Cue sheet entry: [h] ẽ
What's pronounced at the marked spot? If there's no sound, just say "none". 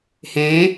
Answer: h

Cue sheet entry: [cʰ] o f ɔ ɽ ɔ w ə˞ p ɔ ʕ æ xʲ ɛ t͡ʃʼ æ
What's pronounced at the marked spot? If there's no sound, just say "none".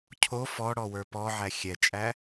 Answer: cʰ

